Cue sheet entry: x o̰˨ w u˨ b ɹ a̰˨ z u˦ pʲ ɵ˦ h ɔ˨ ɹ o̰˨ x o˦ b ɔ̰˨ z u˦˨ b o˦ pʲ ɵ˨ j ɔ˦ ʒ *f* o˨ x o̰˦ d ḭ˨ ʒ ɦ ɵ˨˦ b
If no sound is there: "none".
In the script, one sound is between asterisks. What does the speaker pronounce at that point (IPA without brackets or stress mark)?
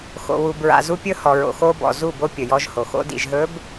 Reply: h